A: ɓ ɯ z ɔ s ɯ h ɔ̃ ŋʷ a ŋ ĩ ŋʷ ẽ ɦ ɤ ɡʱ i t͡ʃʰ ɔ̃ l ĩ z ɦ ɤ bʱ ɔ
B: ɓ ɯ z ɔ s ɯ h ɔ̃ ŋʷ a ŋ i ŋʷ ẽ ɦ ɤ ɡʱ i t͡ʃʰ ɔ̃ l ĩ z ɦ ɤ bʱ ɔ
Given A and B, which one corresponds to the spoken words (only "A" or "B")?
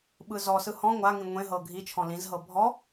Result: A